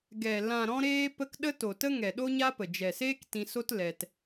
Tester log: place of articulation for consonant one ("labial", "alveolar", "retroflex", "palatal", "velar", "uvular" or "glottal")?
velar